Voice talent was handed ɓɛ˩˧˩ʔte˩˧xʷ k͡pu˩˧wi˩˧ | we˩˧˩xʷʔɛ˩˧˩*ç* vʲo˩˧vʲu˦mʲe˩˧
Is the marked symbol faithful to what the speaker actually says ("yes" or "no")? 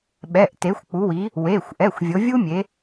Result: no